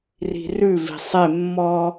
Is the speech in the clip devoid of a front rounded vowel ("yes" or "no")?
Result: yes